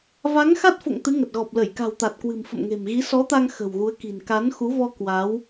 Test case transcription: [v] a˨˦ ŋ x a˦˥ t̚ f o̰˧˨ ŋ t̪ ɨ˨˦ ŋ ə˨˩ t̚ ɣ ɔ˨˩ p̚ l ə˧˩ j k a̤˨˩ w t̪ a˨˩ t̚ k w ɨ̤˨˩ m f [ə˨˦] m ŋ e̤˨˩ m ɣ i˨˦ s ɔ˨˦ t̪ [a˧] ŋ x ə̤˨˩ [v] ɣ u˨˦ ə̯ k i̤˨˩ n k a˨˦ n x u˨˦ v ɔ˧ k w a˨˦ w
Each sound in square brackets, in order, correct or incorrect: correct, incorrect: ə̰˧˨, correct, incorrect: w

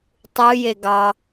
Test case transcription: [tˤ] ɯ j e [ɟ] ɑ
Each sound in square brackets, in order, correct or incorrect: correct, incorrect: ɡ

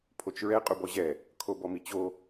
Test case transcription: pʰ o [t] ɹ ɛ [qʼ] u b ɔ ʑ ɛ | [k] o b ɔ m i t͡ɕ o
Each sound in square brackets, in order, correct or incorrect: incorrect: t͡ʃ, correct, incorrect: kʰ

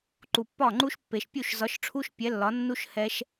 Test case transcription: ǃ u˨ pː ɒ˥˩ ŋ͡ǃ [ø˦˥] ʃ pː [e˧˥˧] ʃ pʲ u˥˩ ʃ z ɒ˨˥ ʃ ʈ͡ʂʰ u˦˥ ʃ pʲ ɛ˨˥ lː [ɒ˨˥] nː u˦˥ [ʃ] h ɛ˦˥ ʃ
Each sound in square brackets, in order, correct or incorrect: incorrect: u˦˥, incorrect: e˨, correct, correct

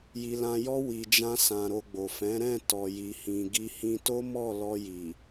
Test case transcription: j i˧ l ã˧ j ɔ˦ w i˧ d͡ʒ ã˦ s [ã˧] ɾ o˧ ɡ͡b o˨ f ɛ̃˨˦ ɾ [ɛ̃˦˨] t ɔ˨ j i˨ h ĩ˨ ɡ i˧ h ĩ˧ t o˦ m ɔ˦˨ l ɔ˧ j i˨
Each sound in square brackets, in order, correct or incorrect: correct, correct

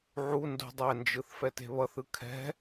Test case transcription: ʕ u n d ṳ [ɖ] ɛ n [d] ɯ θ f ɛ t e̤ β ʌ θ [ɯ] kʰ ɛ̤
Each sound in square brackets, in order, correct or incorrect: incorrect: dˤ, incorrect: d͡ʒ, correct

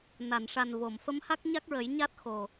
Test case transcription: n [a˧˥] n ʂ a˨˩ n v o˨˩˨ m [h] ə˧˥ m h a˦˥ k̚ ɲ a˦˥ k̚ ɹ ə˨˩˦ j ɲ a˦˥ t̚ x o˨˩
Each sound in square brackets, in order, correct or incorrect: incorrect: a˨˩˨, incorrect: f

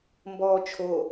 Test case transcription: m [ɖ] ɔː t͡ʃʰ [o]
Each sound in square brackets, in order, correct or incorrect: incorrect: b, correct

